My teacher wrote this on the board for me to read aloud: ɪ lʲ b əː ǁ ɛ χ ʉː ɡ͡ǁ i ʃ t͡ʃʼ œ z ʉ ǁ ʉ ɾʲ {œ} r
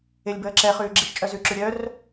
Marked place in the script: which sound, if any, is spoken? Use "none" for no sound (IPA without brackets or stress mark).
œ